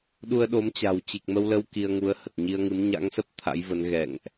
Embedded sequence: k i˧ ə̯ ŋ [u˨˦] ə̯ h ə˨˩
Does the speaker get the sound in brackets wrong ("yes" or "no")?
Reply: no